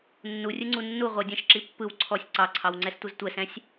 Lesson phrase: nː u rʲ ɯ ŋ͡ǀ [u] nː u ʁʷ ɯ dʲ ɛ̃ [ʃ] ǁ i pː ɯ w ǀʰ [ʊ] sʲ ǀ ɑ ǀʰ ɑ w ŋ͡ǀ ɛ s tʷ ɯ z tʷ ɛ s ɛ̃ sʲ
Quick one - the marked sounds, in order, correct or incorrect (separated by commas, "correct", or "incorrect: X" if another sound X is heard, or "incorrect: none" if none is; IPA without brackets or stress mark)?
correct, correct, incorrect: ɔ